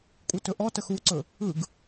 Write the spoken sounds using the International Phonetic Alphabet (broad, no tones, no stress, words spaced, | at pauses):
kʷʼɯtɵʔɔtəx uǀɵ | ɯɡ